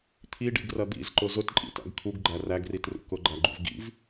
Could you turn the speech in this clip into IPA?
t̪ʰ i ɖ ḭ ɡ r ɐ d̪ ḭ z ǃ ʊ z ʊ t ǃʼ ḭ t æ̰ ɡ kʰ u ɡ ɡ͡ǃ æ r æ ɡ r i t r ṵ k ʊ ɡ͡ǃ æ ɡ͡ǃ ṵ v ɡ ḭ v

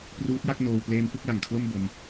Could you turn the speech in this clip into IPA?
p r uː˦˥ t̚ j a˥˩ k̚ n oː˧ w p l eː˦˥ m p ɯ˦˥ k̚ l a˨˩ ŋ kʰ l o˥˩ m b o˦˥ m

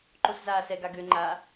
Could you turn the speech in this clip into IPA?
ǃ o s z aː s ɛ ɡ a ɡ ø ŋ͡ǃ a

